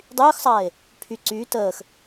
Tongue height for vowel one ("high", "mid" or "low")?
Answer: high